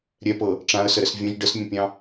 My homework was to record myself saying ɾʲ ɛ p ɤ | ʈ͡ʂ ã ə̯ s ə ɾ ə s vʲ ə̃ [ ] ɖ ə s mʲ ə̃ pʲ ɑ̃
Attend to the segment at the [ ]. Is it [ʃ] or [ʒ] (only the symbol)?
ʒ